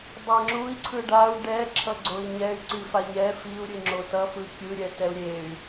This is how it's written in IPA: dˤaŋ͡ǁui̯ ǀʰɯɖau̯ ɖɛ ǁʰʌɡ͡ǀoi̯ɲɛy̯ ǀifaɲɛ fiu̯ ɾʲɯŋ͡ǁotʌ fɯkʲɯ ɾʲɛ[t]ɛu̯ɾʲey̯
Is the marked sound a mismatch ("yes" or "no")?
no